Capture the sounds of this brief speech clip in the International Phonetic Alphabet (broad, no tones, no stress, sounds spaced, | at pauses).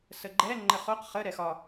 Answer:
s ə ɡ͡ǃ ɛ ŋ͡ǃ ə χ o q χ ə ɾ ɛ x ɒ